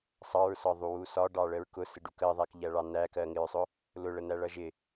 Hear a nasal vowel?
no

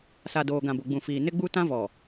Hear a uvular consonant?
no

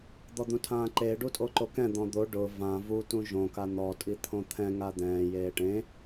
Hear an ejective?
yes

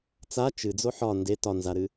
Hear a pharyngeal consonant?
yes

